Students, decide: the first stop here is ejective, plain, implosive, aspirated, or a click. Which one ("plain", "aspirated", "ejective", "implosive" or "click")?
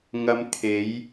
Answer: aspirated